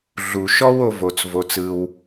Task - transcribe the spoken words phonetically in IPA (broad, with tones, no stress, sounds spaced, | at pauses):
ɮ u˩ ʃ ɔ˥ w o˧ v o˩ t͡s v o˩ t͡s ɯ˩ w